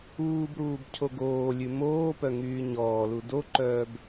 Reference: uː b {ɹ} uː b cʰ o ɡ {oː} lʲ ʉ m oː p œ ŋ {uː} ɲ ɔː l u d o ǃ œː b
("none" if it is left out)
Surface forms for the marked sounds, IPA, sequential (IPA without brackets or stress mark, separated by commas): ɾ, oː, yː